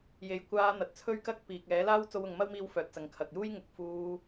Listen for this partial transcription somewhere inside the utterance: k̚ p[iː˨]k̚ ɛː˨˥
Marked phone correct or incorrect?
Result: correct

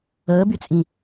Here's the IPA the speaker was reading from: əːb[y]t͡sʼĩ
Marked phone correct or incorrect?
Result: correct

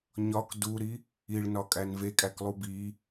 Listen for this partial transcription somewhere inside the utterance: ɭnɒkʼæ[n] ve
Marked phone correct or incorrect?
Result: correct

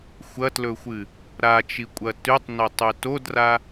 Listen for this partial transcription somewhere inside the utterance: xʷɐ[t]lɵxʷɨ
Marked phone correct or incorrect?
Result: correct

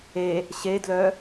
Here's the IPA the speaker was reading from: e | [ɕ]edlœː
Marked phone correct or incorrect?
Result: correct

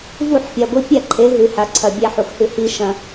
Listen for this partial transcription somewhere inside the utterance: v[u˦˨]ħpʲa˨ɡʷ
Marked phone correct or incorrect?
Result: correct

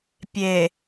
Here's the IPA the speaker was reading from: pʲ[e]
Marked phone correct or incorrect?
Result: correct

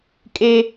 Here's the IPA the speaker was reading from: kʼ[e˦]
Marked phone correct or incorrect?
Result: correct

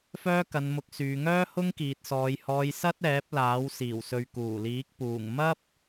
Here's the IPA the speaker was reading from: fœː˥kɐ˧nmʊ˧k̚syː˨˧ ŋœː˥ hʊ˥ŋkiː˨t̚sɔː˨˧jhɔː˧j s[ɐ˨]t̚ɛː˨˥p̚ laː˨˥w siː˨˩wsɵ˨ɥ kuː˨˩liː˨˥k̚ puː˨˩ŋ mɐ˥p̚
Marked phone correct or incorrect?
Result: incorrect: ɐ˥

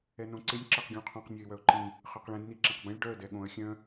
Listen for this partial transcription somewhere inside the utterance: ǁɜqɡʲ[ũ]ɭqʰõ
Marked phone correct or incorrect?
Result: correct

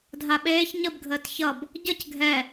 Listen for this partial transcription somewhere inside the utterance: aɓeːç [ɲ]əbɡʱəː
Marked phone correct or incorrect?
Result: correct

